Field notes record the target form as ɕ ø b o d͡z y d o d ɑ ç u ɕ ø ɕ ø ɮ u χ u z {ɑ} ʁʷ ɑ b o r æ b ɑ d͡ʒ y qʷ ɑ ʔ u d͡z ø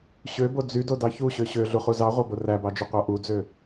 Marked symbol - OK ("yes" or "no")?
yes